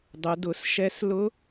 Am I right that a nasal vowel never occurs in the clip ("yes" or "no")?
yes